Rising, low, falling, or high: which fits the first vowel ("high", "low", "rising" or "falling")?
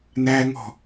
high